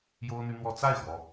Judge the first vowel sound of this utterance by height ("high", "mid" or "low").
mid